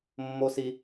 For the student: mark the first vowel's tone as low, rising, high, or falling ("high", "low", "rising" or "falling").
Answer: high